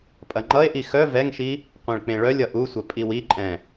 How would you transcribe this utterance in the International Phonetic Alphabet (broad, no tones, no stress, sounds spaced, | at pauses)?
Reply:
pʼ ɐ ŋ͡ǃ ʌ e̯ ʔ i x œ v ɛ ŋ ʃ i | qʷ ẽ ɭ k͡p ẽ ɭ œ lʲ ʌ ʔ u sʷ ɐ pʼ i w i ǃʼ ɛ̃